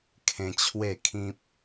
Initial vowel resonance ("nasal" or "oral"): nasal